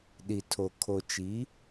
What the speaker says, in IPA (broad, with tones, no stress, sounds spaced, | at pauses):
ɗ i˨ tʰ o˨ kʰ o˨ t͡ʃ i˨˦